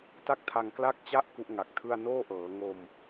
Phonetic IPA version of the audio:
t a˥˩ k̚ tʰ a˧ ŋ k l a˥˩ k̚ t͡ɕ a˥˩ ʔ k u˦˥ ʔ ŋ a˨˩ k̚ tʰ ɯ˥˩ a̯ n oː˥˩ ʔ ɤː˩˦ ŋ o˧ m

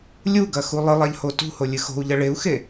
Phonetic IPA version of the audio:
lʲ u ɡ ɐ x u lˠ ɨ lˠ a ʎ h o t ṳ h o lʲ ɨ x o̤ u̯ ʎ ɐ ɭ e u̯ x e

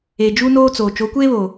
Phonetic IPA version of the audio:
e˨ d͡ʒ u˦ n oː˦ t͡s oː˨ t͡ʃ o˨˦ kʷ eː˦ β o˨

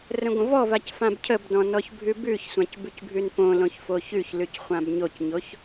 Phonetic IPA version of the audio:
r ə̃ ɡʷ ə̃ v ɔ v a c f ã b cʰ ə b d ɔ̃ n ɔ ç bʱ ʉ b ʉ ç sʷ ã c b ʉ c bʱ ʉ n p õ l õ ç f o ç ʉ ç l ʉ c χʷ ã b ɲ o c ɲ o ç

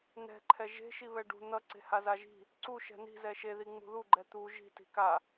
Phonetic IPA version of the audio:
n̪ ɛ̤ ǃʰ ɛ ʒ e̤ ʃ i β ɛ ɖ ṳ n̪ ʌ ǀ e̤ h a z a ʒ i̤ | ǀ u ʃ ɛ̤ n i̤ z ɛ ʃ e ð i ŋ͡m ṳ ð u ɡ͡ǃ ɛ t̪ u ʒ i̤ t i̤ k a

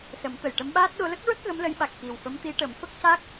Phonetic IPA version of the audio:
s ə˨˩˦ m t̪ ə˨˩ j ʈ ə˧˥ m ɓ aː˦˥ t̚ ɗ o˧˥ l ə˦˥ k̚ ɹ ə˦˥ k̚ ɣ ə˧˥ m l ə˧˥ j ɓ a˨˩ k̚ x i˨˩ w f ə˧˥ m t̪ i˧˥ ʈ ə˨˩˦ m f ə˦˥ k̚ c a˦˥ k̚

